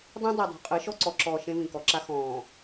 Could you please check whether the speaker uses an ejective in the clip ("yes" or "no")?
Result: yes